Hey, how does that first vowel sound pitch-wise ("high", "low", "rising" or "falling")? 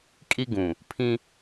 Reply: high